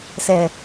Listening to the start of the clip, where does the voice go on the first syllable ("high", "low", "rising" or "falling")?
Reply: low